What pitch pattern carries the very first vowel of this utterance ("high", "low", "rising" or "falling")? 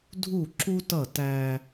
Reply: falling